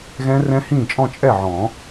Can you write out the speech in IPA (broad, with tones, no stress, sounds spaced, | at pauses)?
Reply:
ɣ ɛ̃˦˥ r ɛ̃˦˥ h ĩː˥˩ t͡ʃʼ ɔ̃˥˧ t͡ʃʼ ɛ˥˩ ʕ ɔ̃ː˨˩˦